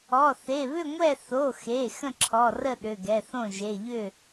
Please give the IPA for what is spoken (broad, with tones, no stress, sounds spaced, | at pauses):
ɔ˩˧˩ θ e˩˧˩ β ʏ˥˨ ŋʷ ɛ˥˨ θ o˩˧˩ x e˩˧˩ x ə̃˥˨ ǁʰ ɔ˩˧˩ r ə˥˨ ɗ ʏ˩˧˩ ɡ ɛ˩˧˩ θ õ˥˨ ʒ e˩˧˩ ʎ ʏ˥˨